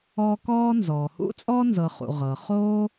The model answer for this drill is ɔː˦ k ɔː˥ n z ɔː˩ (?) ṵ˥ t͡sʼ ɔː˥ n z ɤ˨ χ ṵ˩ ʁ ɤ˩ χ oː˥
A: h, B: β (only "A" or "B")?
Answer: A